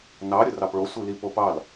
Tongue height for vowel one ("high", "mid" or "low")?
low